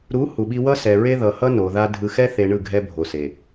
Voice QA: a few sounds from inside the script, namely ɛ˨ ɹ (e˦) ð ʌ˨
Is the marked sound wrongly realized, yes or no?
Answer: no